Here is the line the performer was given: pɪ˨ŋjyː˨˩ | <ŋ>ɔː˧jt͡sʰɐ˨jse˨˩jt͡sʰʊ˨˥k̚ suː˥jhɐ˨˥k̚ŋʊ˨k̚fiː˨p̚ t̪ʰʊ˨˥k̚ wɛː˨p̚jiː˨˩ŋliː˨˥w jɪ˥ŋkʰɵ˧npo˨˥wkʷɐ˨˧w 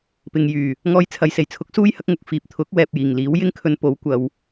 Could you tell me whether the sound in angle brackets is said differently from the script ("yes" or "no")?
no